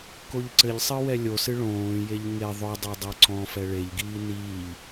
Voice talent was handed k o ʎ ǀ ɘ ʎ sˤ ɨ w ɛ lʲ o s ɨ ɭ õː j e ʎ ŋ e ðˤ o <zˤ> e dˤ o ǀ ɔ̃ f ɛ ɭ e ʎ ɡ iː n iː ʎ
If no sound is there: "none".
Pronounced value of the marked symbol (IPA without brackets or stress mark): dˤ